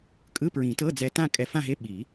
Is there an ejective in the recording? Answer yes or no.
yes